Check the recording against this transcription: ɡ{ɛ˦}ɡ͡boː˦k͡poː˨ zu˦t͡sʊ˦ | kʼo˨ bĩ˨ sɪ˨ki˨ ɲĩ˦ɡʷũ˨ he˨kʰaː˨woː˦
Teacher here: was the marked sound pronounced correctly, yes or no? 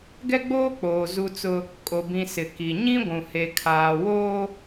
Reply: yes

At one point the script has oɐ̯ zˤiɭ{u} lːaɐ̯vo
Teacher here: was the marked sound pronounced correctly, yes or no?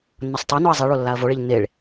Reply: no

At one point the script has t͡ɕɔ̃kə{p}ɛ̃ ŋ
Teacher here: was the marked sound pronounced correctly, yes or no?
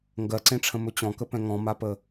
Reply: yes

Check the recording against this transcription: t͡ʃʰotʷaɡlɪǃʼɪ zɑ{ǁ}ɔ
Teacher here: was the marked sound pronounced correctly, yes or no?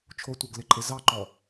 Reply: no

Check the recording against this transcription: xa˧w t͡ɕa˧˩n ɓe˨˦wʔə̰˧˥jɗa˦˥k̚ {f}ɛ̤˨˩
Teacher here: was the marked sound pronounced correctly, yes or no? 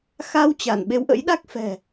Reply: yes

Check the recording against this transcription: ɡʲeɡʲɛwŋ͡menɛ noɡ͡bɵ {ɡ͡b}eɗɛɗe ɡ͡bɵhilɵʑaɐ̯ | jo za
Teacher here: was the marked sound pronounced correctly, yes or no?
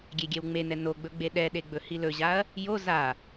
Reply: yes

